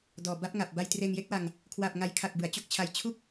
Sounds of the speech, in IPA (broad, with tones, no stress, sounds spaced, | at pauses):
d ɔː˨˩ b a˦˥ p̚ ŋ a˨˩ p̚ b a˧ j t r eː˧ ŋ j e˥˩ k̚ w a˧ ŋ | kʰ w a˨˩ p̚ ŋ a˨˩ j kʰ a˨˩ k̚ b ɯ˩˦ a̯ t͡ɕ o˥˩ k̚ t͡ɕʰ a˧ j t͡ɕʰ u˥˩ k̚